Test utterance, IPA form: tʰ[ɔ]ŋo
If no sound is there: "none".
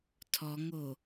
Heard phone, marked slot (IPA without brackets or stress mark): ɔ